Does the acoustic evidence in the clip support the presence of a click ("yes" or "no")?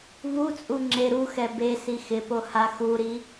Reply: yes